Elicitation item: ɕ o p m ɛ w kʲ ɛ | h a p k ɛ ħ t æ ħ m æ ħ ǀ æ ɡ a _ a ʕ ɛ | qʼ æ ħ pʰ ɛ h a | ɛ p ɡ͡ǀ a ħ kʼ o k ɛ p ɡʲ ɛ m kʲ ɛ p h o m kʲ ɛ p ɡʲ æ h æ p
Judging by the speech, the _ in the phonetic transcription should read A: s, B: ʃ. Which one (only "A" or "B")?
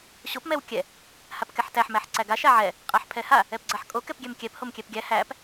B